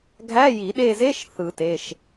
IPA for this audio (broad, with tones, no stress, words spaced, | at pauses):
ɡʱæ˧˥˧ji˨˩˦ɗe˦˨ze˧˥˧ʃ θɯ˨˩˦te˩˧˩ʃ